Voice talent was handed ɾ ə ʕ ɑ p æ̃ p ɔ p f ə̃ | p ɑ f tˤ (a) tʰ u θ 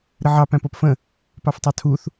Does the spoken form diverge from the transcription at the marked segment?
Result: yes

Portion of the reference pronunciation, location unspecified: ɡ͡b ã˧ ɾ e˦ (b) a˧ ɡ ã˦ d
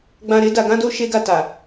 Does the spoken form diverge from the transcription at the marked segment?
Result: yes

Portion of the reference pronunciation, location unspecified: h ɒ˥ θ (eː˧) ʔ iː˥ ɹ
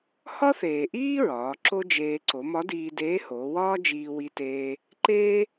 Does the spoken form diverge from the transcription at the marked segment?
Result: yes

